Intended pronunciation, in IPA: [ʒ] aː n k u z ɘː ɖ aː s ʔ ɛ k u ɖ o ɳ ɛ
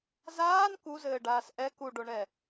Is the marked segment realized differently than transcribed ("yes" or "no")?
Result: yes